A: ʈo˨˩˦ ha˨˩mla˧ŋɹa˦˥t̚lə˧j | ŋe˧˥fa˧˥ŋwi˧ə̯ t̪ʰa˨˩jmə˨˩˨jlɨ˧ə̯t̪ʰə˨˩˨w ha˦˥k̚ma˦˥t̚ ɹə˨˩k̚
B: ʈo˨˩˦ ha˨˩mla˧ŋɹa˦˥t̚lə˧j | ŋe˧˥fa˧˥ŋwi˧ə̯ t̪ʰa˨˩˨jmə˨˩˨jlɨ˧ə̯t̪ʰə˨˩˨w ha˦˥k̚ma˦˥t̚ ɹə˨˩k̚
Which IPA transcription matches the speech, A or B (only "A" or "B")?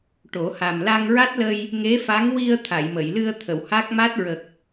B